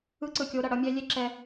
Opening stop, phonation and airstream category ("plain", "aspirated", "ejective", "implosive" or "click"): click